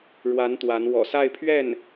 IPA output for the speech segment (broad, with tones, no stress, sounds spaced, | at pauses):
ɻ w a˧˥ n t̪ w a˧˥ n w ɔ̰˨˩ s a˥˧ ɪ̯ pʰ ɥ ɛ˥˩ n